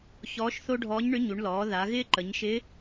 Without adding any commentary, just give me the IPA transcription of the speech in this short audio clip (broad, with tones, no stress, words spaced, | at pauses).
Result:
çɔː˧˥ʃθo˥ ɖʱɔː˧˥ɲɳʏ˧˥ɲu˩˧ɳ lɔː˩˧ ða˩˧ɣɪː˥ ǃə˩˧ɲʃɪ˧˥